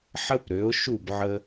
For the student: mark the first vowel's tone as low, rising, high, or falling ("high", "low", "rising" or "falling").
high